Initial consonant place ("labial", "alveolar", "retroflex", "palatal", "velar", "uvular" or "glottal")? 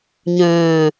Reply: palatal